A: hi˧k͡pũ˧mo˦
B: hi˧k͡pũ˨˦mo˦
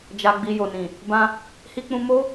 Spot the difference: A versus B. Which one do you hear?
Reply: A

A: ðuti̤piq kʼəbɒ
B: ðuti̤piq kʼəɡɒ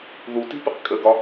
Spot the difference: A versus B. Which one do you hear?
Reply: B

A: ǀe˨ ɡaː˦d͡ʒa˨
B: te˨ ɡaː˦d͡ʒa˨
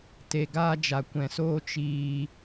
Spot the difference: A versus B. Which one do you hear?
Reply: B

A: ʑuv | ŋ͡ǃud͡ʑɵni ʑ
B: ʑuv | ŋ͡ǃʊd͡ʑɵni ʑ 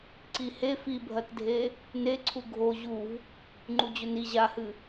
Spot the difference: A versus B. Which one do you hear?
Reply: A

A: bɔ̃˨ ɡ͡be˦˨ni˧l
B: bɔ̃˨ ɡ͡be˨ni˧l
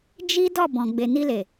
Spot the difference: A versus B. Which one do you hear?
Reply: B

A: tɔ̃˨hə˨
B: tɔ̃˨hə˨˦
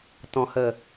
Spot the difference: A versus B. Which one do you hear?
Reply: A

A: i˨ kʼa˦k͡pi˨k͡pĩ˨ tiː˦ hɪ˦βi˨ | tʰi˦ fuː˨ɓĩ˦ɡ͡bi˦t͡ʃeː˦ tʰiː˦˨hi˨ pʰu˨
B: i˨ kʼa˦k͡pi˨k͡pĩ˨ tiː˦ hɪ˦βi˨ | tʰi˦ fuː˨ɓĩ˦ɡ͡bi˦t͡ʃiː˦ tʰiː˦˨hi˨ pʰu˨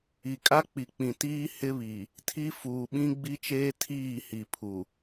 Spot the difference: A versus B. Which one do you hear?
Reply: A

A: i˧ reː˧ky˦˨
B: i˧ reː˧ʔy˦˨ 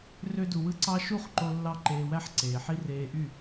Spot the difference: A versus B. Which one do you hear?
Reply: B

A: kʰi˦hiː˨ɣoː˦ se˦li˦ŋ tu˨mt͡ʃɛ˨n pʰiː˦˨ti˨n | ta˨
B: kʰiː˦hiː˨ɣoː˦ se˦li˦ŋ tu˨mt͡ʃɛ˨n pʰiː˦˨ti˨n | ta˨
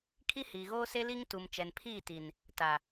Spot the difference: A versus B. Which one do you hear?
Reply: A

